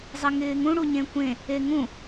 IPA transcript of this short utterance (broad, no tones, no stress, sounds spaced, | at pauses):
zˤ ɪ ŋ ɪː ŋ ũ ɽ u ɲ ẽ kʷ ẽ | e ŋ ũ